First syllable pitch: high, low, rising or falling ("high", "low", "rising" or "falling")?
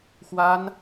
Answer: high